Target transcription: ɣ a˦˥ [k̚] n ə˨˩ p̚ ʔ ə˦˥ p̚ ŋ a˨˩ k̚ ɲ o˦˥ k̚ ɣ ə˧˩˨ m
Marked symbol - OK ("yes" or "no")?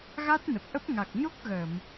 no